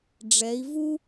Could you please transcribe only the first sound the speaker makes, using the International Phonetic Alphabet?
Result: ɖ͡ʐ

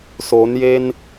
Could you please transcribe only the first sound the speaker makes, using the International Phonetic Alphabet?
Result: s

